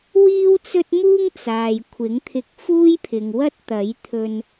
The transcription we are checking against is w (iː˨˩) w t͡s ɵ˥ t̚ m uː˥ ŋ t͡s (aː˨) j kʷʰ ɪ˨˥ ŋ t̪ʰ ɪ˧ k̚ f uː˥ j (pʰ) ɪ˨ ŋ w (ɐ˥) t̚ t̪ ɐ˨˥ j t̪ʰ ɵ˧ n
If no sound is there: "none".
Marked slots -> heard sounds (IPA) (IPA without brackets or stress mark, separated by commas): iː˥, aː˨, pʰ, ɐ˥